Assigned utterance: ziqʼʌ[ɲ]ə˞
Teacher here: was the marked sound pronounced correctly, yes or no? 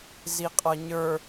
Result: yes